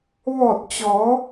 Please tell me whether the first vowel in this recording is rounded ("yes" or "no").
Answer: yes